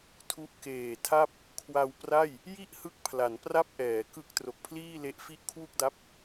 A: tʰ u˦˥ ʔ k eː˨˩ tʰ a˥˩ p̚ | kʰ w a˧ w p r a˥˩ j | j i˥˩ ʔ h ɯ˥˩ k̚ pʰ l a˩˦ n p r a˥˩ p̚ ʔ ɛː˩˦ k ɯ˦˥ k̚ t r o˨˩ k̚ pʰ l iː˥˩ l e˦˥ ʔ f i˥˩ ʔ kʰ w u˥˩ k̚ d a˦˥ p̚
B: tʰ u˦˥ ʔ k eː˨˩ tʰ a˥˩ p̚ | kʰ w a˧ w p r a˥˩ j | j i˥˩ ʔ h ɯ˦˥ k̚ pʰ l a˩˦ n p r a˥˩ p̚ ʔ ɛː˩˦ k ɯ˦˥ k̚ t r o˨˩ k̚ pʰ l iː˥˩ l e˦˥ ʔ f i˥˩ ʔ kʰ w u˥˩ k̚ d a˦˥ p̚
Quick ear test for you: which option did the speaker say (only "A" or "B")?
B